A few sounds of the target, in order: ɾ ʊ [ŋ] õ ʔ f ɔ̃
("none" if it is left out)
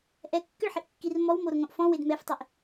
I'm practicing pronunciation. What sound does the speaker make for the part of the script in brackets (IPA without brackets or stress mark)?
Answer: ŋ